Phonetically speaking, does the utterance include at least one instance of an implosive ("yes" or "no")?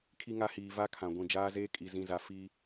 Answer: no